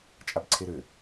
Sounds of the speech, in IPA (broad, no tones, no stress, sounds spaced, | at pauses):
t͡ʃʼ a b ǀʰ e ɾ ø